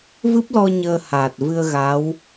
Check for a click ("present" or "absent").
absent